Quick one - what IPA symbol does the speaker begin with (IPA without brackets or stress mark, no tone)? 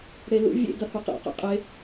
ɽ